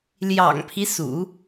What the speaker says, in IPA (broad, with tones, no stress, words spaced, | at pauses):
ljɑ̰˨˩ŋpʰi˦sṵ˨˩˦